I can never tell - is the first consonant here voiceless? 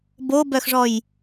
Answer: no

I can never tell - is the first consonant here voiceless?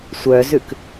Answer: yes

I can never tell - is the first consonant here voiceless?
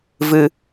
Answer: no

